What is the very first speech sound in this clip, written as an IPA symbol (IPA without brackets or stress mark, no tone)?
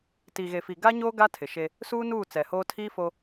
t